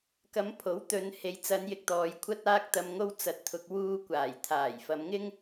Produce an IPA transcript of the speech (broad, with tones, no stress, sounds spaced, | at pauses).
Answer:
k ɐ˨˧ m pʰ o˨˥ w t̪ ɵ˨ n h e˨ j t͡s ɐ˨˧ n j ɪ˨ k̚ t̪ ɔː˨ j kʷʰ ɐ˧ t̚ aː˧ k̚ t̪ ɐ˨ m ŋ o˧ w t͡s ɐ˨˥ t̚ t̪ʰ ʊ˨ k̚ w uː˧ kʷ aː˨˩ j t̪ʰ aː˨˩ j f ɐ˨˧ m ŋ ɪ˥ ŋ